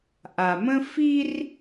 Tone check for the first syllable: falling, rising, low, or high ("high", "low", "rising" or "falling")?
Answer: low